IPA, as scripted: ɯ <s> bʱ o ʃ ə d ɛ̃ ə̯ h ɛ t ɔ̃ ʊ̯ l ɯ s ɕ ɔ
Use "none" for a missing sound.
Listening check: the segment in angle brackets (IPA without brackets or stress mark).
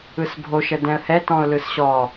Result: s